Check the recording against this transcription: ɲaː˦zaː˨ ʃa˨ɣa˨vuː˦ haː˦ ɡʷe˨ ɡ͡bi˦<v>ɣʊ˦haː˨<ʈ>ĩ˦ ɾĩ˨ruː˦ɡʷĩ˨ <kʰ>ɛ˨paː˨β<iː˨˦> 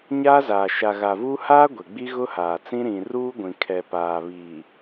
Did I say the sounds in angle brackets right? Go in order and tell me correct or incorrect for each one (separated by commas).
incorrect, incorrect, correct, incorrect